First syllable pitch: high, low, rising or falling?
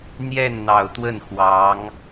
falling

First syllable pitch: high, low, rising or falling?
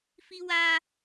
high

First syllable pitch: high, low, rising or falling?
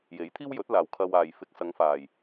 rising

